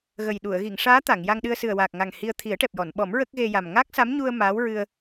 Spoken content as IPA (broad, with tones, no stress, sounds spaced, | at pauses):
ɣ ə˨˩ j ɗ u˨˩˨ ə̯ ɣ i˨˩˨ ŋ ʂ aː˧˥ t̪ a˨˩˨ ŋ j a˧ ŋ ɗ ɨ˧ ə̯ s ɨ˨˩ ə̯ w aː˨˩ k̚ ŋ a˨˩ ŋ h i˧ ə̯ t̪ʰ i˨˩˦ ə̯ ʈ ɛ˨˩ p̚ j ɔ˨˩˨ n ɓ ɔ˨˩˦ m ɹ ə˦˥ k̚ ɣ e˧ j a˨˩ m ŋ a˦˥ k̚ s a˧˥ m ɲ u˧ ə̯ m aː˧˥ w ɹ ɨ˧ ə̯